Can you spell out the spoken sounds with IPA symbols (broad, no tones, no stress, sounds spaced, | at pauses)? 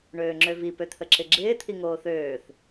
ɳ øː ŋ͡ǁ ø v i p ø t̪ʰ ə ǁ ɪ ɡ͡ǁ ɪː t̪ʰ i ŋ oː θ øː θ